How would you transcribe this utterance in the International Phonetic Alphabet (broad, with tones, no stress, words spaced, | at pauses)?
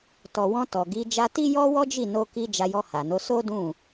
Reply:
tɔ˨wɔ̃˧ tɔ˨ɡi˨˦ d͡ʒa˧ti˦ jɔ˦wɔ˦d͡ʒi˦˨ no˧ki˧ d͡ʒa˧jɔ˧ha˨no˨˦ so˦dũ˦˨